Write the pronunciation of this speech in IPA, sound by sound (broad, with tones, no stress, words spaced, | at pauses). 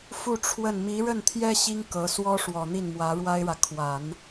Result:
fu˥˧ʈ͡ʂʰwə˥˩n mi˧˥ɻə˥˩nt̪ʰjɛ˥ ɕi˥ŋ kɤ˧˥ swɔ˥ʂwɔ˨˩ n̪i˥˩nmwä˧˥ɻwa˥ɪ̯ɻä˨ kʰwa˨˩˦n